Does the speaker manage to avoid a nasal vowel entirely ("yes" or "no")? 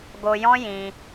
no